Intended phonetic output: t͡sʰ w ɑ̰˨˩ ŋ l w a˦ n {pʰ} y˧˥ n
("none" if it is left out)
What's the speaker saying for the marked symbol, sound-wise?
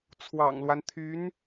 t̪ʰ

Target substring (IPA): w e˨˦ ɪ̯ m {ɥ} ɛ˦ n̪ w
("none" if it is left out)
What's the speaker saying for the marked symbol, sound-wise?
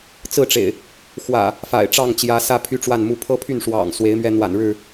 ɥ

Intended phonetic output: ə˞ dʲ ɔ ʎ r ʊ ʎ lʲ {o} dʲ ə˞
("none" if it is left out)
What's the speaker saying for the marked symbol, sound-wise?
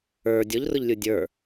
u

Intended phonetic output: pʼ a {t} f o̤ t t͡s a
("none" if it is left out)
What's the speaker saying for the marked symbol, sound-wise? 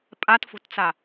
t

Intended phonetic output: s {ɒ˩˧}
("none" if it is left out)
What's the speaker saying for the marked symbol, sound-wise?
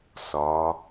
ɒ˩˧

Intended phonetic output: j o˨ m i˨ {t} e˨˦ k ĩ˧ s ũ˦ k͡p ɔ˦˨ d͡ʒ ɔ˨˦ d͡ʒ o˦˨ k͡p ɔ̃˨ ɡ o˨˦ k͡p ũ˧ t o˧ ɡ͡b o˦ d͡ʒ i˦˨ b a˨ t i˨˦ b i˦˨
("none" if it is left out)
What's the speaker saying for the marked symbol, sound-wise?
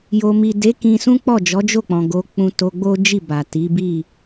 d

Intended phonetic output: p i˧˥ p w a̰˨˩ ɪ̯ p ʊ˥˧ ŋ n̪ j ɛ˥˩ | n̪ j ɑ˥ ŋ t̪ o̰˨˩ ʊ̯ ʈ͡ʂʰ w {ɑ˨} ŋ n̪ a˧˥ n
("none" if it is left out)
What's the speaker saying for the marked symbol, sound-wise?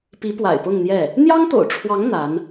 ɑ˧˥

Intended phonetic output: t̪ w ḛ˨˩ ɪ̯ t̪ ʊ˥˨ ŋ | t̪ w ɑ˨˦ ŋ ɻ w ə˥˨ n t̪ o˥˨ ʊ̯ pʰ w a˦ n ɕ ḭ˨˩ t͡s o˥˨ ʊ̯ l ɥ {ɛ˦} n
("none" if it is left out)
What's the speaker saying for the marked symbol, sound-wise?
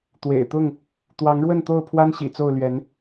ɛ˨˦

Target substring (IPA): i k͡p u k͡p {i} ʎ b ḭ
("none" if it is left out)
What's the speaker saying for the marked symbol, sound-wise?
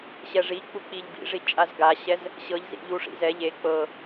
i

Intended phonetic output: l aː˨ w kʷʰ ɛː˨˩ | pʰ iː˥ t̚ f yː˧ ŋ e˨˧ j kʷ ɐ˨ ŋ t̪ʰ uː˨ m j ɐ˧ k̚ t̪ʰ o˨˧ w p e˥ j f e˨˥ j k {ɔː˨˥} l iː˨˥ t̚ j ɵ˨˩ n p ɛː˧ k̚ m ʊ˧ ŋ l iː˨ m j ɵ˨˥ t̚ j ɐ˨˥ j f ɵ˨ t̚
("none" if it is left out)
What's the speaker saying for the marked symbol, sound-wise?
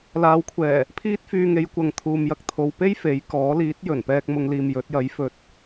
ɔː˨˥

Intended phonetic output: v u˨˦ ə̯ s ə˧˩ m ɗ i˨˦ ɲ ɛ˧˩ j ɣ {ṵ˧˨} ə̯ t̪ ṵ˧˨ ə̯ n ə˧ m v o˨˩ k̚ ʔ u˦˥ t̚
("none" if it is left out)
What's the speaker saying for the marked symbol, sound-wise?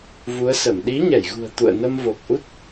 ṳ˨˩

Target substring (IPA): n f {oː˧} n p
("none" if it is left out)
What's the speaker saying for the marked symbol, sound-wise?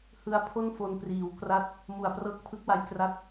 o˧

